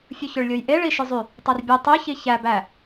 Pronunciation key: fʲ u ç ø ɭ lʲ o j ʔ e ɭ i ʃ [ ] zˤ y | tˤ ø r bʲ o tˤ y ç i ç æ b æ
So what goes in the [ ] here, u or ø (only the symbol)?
ø